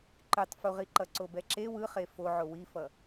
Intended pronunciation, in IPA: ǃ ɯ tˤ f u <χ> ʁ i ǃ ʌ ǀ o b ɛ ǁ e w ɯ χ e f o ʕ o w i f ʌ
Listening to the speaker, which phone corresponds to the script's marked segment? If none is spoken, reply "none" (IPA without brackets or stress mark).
none